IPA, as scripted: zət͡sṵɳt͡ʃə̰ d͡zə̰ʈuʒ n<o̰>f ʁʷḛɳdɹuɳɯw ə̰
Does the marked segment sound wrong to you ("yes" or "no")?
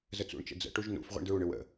yes